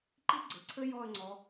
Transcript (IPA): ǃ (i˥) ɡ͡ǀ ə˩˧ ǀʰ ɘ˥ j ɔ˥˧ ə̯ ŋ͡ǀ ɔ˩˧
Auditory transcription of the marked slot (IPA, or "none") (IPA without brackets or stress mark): i˥